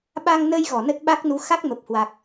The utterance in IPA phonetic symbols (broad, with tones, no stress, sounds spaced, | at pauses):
ɓ a˧ ŋ n ə˧ j ɣ ɔ˧˩ n ə˦˥ t̚ ɓ a˦˥ k̚ n u˨˦ x a˦˥ k̚ m ə˨˩ p̚ h w a˨˩ k̚